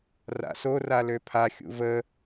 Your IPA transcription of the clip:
r a̰ s o r a l ø pʰ a xʲ ṵ v ə

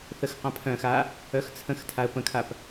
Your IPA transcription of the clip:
θ ə x q ã pʰ œ̃ x a | œ x t͡sʰ ə̃ x tʰ a ə̯ p ə̃ kʰ a p

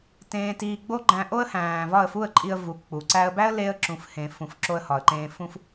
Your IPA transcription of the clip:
t ẽː˧ t iː˧ ɡ͡b o˦ ɡ͡ǃ æ̃˧ ʔ o˦ ə̯ h æ̃ː˨ v ɒ˦˨ ə̯ f u˦˨ ə̯ ǃʼ i˧ ə̯ v u˨ k͡p u˨ ǀ æ˧ ə̯ b æ˦ ə̯ l e˧ ə̯ ǁ ũ˨ f h ẽː˨ f ũ˨ f ǁ o˧ ə̯ h ɒ˨ ə̯ ǃ ẽː˧ f ũ˦ f

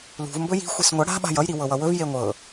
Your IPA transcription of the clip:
l ṳ v m b ɵ j i̤ xʷ i s ŋʷ ʌ ɽ a̤ ɓ a̤ j ʌ j ɾ i w ɤ w ʌ w ɵ v j e ŋʷ ɤ

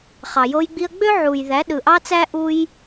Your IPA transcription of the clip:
χ ɑ˩ j o˧ j ɡ͡b i˧ ɐ̯ ɡ͡b ø˥ ʕ u˩ j ð æ˩˥ ɗ ɯ˩ ʔ ɑ˥ t͡s æ˥ ʔ u˧ j

